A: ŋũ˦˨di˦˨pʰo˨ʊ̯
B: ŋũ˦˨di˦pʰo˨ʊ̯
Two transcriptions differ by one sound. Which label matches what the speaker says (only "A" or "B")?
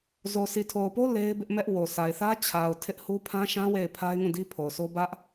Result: B